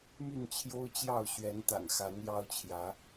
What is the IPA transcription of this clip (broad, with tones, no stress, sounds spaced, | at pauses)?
m y˥˨ n t͡ɕʰ j o˦ ʊ̯ t͡ɕ j ɑ˥˨ ʊ̯ ɕ ɥ ɛ˨˦ n t̪ a̰˨˩ n x a˨˦ n j ɑ˦ ʊ̯ t͡ɕʰ j ä˨˦